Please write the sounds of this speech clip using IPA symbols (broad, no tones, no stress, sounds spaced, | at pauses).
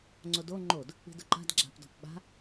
ŋ͡ǀ o d o ŋ͡ǃ o d | i̤ d ʊ ǃ a̤ d ɡ͡ǁ a̤ p d ɔ̤ p ɓ a̤